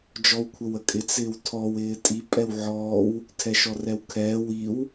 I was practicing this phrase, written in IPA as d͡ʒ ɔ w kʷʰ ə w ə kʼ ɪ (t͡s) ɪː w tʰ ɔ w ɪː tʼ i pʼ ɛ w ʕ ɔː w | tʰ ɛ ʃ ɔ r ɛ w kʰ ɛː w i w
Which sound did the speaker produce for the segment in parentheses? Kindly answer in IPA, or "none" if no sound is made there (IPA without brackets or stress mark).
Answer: t͡s